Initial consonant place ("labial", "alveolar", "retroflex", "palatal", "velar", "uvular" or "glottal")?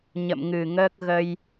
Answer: palatal